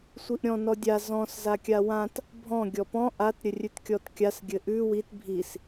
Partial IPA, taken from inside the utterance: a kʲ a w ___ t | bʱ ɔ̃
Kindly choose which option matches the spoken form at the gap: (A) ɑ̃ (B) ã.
B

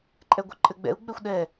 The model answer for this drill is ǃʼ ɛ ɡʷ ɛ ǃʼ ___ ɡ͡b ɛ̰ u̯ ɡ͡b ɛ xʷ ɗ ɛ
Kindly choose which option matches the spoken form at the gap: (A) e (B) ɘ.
B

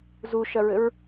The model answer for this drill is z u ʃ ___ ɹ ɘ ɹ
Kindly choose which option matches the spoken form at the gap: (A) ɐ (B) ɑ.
A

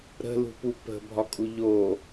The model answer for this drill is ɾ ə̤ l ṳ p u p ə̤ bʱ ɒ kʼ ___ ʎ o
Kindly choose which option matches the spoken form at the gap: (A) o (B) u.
B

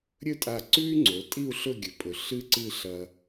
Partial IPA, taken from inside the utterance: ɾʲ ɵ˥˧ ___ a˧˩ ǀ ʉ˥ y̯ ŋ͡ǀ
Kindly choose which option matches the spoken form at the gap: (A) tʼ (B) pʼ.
A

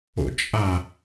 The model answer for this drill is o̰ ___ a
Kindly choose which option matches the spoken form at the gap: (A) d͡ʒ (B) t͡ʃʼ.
B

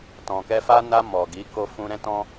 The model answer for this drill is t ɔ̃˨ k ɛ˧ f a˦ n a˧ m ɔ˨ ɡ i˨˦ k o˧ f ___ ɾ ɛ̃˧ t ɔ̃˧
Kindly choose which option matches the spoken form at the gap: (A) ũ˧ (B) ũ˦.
B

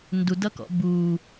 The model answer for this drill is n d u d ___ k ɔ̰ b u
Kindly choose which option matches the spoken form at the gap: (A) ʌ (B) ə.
A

